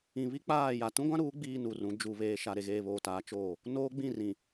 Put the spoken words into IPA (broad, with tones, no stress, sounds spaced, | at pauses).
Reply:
ĩ˨ β i˦ k͡p aː˦˨ j a˨ t ũ˦ ɡʷ ã˦ ɾ uː˨˦ ɡ͡b iː˦ n u˨ r ũ˨˦ d͡ʒ u˨ β eː˨ ʃ a˨ ɾ e˨ ɣ eː˨ β oː˨ t aː˨˦ t͡ʃ oː˦˨ | n oː˦ ɡ͡b ĩ˦˨ r ĩ˨